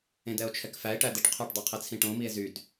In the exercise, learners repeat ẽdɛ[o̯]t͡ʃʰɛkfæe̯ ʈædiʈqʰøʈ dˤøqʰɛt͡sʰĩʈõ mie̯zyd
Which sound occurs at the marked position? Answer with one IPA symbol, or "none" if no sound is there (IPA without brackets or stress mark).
o̯